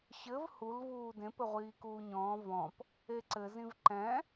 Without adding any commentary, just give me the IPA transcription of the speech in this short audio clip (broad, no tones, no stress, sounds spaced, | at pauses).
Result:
ɕ ɘ v h u l v uː d ẽ p ɘ ʁʷ iː k uː ɲ ɔ̃ː v ɔ̃ p | e ǀ ɘ z ĩ v ǃ ɛ̃